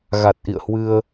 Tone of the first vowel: low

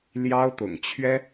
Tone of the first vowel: high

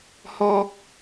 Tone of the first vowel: low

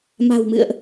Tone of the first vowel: low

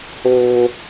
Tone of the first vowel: high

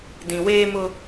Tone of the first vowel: low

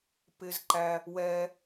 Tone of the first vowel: low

